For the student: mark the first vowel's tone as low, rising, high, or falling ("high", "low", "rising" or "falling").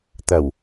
low